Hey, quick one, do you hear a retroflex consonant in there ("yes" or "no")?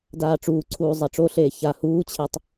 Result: yes